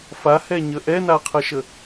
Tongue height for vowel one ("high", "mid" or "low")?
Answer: low